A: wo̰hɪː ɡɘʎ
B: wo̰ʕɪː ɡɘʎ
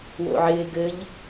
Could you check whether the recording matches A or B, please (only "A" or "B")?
B